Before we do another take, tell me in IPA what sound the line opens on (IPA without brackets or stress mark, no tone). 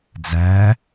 d͡z